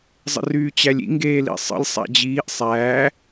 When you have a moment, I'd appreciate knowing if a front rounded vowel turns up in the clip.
yes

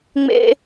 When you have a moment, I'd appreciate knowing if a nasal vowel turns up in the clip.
no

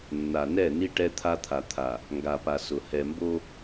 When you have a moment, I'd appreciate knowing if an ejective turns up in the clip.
no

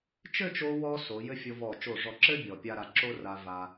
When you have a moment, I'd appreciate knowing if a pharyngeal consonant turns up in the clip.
no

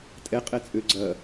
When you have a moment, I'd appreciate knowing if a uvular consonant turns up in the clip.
yes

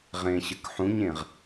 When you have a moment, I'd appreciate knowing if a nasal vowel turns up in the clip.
yes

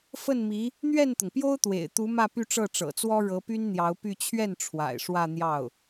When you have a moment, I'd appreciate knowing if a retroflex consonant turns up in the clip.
yes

